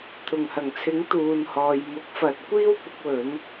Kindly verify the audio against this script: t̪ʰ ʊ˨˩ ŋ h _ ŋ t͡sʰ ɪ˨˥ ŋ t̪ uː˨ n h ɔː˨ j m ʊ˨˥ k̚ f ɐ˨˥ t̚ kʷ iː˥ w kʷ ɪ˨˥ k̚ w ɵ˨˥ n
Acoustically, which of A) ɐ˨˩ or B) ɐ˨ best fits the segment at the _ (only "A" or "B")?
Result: A